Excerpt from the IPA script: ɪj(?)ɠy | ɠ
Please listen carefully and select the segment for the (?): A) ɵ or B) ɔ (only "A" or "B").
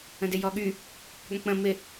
B